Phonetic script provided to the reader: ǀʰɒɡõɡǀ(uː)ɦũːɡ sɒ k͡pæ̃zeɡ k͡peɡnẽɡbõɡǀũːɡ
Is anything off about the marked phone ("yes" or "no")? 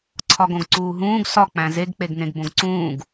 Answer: no